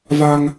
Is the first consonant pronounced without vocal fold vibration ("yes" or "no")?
no